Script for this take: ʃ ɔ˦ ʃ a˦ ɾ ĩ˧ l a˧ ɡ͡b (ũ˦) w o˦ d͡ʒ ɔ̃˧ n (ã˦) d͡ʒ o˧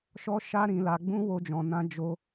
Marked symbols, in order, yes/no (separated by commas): yes, yes